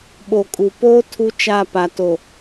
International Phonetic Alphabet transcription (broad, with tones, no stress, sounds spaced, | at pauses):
ɓ o˨ kʼ u˨ p oː˦ tʰ u˦ t͡ʃ a˦˨ p a˨ t o˨